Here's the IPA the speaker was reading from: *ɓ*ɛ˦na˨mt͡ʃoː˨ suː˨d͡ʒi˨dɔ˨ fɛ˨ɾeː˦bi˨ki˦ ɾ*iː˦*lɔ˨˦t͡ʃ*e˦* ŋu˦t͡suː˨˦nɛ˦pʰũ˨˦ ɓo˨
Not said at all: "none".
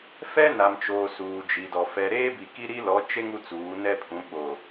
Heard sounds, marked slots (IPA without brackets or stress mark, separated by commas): f, i˦, e˦